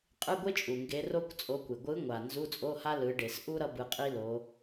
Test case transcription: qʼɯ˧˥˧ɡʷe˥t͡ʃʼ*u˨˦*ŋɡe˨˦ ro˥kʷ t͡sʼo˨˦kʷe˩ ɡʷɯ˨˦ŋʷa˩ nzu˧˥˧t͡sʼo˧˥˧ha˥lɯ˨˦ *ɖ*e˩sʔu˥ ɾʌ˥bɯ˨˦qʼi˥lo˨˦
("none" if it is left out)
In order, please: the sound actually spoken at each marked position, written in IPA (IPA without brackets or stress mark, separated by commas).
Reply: u˩, ɖ